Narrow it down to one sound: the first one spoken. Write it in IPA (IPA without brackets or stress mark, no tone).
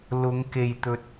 l